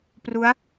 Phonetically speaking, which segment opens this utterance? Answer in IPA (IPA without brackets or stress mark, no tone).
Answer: p